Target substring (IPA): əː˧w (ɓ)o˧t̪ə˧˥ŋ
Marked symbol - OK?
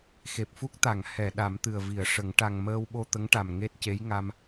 yes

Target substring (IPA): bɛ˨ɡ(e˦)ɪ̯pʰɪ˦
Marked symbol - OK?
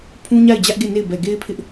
yes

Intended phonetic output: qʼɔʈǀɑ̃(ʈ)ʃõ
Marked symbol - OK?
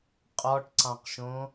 no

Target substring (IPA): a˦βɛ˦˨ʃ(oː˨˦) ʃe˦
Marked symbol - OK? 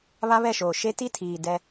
no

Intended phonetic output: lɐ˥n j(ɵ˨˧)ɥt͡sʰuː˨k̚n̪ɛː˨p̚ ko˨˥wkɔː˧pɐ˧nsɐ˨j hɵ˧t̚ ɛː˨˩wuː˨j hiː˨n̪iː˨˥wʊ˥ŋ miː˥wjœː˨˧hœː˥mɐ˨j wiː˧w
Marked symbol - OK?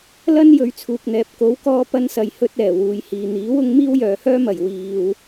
yes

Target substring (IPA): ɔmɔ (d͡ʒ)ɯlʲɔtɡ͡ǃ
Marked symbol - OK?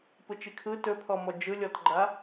yes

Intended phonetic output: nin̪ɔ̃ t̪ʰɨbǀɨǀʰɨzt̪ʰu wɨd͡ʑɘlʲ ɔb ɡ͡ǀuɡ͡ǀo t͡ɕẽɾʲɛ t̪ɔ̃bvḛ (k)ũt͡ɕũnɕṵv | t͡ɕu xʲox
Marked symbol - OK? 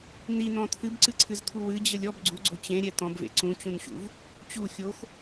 no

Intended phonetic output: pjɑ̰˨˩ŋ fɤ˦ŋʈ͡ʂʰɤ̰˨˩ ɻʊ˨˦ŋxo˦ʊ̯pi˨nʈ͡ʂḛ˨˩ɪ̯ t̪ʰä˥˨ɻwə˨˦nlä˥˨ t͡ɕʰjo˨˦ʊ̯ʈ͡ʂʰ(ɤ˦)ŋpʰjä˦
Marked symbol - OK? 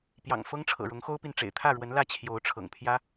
no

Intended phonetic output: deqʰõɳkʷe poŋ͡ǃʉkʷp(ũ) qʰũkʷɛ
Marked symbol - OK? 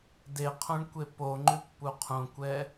no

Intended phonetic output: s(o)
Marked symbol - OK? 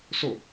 yes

